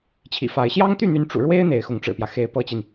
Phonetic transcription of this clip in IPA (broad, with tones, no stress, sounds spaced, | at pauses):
t͡ɕʰ ḭ˨˩ f a˨˦ ɪ̯ ɕ j ɑ˦ ŋ t̪ y˥˨ n̪ y˨˦ n ʈ͡ʂ ṵ˨˩ ɻ w e˦ ɪ̯ n̪ e˨˦ ɪ̯ x ʊ˨˦ ŋ ʈ͡ʂ ɻ̩˨˩ p j ä˦ x e˨˦ ɪ̯ p ɤ˦ t͡ɕ i˨ n